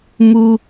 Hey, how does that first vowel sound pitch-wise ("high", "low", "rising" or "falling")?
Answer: high